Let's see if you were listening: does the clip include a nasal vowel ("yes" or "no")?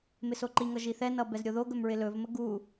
no